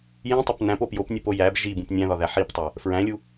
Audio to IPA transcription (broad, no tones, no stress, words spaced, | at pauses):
jĩtˤop næ̃po pjopnʲupo jæb ʒibũp nʲæ̃ðɒðæ ħiptˤæ | fɹæ̃lʲu